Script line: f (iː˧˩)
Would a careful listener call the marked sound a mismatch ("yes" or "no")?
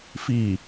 no